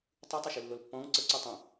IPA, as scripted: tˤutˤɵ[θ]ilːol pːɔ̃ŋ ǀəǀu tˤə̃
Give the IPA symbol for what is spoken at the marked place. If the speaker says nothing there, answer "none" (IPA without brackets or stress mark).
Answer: ʃ